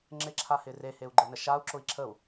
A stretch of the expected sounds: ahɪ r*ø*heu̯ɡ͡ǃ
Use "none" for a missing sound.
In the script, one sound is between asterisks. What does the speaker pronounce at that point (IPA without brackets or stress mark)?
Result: e